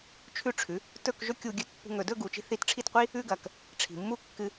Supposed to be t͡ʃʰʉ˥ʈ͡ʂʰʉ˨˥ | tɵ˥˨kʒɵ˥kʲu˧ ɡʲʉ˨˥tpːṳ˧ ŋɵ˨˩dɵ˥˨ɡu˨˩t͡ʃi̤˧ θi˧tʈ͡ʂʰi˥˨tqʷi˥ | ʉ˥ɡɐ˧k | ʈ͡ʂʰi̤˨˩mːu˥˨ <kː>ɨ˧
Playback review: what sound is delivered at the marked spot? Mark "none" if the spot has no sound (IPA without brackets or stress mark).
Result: kː